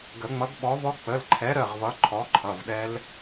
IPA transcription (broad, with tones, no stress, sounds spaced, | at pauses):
ɡ ə˨˩˦ ŋ͡m ʌ˨˥ ɡ ɓ ɔ˨˥ v ɔ˦˥ k͡p ə˩˧˩ l ǃʰ ɛ˨˥ ɾ ə˩˧˩ ʁ v ʌ˨˥ ǃʰ ɔ˨˥ ǃʰ ʌ˩˧˩ v ɗ ɛ˦˥ l